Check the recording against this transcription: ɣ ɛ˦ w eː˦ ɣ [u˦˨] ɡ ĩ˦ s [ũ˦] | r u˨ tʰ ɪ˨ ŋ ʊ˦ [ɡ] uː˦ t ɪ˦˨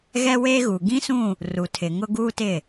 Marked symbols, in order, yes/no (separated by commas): no, no, yes